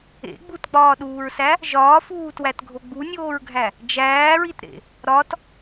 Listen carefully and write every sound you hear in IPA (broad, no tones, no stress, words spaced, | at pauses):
ḛ ɡ͡butɡ͡bɒːɗuːɹsæ | ʒɒːfuːtwætɡʱo ɡ͡bunʲoːɹɡʱæ | d͡ʒæːɹitɾḛ | ɾɒt